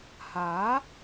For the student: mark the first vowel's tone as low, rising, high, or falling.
rising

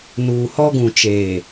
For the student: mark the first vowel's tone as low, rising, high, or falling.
low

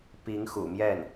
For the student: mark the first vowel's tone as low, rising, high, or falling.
rising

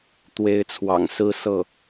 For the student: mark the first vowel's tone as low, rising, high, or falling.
rising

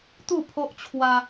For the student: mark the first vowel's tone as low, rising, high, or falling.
falling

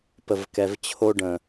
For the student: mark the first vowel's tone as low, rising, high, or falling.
low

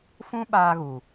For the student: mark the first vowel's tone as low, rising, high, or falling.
high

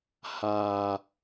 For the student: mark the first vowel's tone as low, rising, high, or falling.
low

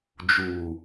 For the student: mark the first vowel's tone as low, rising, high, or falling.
low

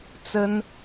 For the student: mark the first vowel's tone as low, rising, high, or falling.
high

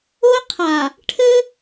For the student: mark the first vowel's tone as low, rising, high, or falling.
high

